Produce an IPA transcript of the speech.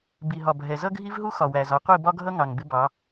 b i˨ ɦ ɒ˨ bʱ ɛ˨ z ʌ˦ ɡʱ i˦ v ɦ u˦ x ɒ˨ w æ˨ z ɒ˨˦ qʷ i˦˨ b ɒ˦ ɡʱ ʌ˦ ŋ ɑ˨ ŋ b ɪ˦ b ɑ˨˦

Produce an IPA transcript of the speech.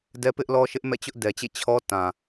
d ɛ˦ p ɪ˦ ʔ l ɔ˦ ʃ ɪ˦ ʔ m ɛ̰˦˨ t͡ɕ ʊ˦ ʔ d ɛ˨ t͡ɕ ḛ˦˨ t͡ɕʰ ɔ˦ t ã˨

